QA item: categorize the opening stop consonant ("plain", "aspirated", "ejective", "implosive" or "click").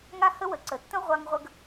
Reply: click